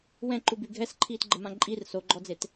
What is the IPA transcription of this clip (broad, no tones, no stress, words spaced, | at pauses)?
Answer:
wɛ̃ǃuby ɡʱɛsǃʰiːtɡ͡ǃəmã ǃʼir soɡ͡ǃɔd͡zet